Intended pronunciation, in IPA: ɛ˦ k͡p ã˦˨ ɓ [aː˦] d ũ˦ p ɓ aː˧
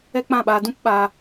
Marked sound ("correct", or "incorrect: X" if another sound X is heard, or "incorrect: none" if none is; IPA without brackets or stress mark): incorrect: aː˧